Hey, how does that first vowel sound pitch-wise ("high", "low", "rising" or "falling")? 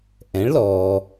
rising